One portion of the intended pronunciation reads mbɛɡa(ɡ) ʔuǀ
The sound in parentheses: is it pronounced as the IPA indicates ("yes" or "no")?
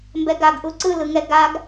yes